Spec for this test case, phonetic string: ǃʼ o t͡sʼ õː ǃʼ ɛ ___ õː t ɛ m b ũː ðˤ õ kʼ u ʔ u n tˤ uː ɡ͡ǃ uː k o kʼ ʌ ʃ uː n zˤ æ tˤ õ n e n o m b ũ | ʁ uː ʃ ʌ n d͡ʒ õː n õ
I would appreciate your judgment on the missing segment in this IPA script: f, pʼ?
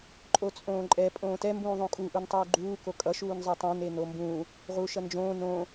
pʼ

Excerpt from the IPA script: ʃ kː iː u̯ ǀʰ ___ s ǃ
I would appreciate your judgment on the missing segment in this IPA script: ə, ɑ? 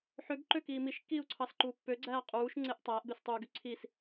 ɑ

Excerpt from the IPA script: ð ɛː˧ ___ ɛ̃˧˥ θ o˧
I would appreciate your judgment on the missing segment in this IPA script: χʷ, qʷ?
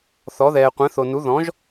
qʷ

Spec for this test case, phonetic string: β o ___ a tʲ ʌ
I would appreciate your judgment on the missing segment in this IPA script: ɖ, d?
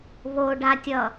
ɖ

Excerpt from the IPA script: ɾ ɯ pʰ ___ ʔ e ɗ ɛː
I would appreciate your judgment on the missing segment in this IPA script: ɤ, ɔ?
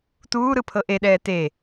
ɤ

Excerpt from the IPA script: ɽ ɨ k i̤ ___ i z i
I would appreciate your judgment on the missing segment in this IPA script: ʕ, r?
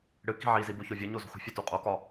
ʕ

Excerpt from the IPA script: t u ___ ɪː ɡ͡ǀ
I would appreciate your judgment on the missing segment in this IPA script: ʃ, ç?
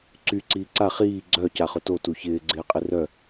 ç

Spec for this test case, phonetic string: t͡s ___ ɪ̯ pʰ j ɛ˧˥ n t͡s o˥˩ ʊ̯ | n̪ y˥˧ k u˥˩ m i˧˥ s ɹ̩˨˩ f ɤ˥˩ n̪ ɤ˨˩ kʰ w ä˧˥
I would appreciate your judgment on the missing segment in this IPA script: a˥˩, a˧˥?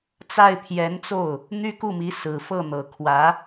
a˥˩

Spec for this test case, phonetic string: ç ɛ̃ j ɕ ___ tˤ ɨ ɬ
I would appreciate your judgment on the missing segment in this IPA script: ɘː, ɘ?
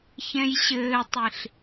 ɘː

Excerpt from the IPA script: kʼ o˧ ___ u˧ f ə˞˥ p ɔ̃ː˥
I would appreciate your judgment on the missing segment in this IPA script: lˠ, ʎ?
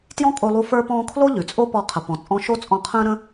lˠ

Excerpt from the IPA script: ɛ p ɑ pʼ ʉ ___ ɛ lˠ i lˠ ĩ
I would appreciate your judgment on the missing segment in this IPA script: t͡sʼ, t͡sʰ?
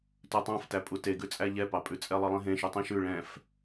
t͡sʼ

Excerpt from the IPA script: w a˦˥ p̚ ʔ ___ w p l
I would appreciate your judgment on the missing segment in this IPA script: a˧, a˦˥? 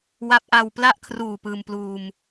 a˧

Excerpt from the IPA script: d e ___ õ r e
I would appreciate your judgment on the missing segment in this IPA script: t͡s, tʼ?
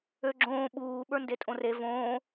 tʼ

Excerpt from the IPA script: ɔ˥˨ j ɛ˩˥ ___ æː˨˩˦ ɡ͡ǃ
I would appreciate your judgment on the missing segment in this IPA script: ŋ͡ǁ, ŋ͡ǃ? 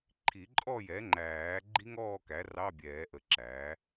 ŋ͡ǃ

